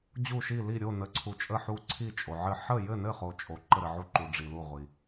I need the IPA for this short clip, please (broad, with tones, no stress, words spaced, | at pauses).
d͡ʑu˧˩ʃi˧˩li˧˩ ɾʲo˧˩nə˩ǀʰu˩ t͡ʃʼə˧˩ħu˧˩ ǀʰi˧˩t͡ʃʼo˩ʕɘ˧˩ ħə˧˩jɘ˧˩nɘ˧˩χo˩ t͡ʃʼo˩ ǃə˧˩ɾɘ˩ʕu˧˩ ǃu˩ ɖ͡ʐi˩lu˧˩ʁʷi˩